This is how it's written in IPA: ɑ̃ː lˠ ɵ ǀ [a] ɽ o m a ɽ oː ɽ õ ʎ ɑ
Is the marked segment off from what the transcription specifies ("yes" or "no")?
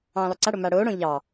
no